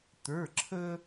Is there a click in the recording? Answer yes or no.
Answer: yes